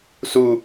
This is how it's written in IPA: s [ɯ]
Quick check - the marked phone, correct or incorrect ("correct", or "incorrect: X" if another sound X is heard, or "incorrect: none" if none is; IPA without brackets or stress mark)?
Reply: incorrect: u